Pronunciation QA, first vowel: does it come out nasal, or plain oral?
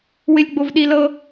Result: oral